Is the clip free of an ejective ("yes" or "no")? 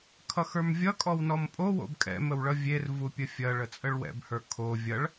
no